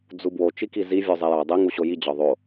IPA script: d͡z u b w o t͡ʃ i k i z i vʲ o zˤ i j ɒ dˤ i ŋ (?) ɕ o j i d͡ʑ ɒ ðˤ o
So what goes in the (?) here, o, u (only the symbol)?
u